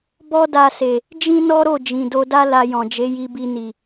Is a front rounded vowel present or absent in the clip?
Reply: absent